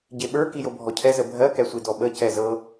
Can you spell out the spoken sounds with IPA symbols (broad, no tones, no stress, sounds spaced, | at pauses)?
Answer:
ɟ e ɓ ə˞ k i j o bʱ ɔ cʰ ɛ z ə bʱ ɜ k ɛ sʷ i d ɔ ɓ ə c ɛ z ɤ